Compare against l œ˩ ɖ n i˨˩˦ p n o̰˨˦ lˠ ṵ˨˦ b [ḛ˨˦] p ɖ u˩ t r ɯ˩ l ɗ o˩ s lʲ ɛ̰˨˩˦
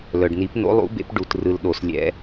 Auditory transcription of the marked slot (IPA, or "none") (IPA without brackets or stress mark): ḛ˨˦